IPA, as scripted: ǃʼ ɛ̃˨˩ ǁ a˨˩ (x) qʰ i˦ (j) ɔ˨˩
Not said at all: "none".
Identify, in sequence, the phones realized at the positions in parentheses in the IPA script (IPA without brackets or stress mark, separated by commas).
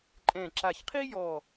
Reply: ç, j